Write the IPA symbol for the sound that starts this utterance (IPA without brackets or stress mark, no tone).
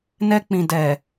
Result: n